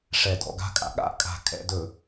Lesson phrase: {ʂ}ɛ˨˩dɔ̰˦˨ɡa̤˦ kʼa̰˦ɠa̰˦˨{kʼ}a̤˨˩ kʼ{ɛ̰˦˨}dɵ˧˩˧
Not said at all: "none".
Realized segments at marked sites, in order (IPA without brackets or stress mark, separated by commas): ʂ, kʼ, ɛ̰˦˨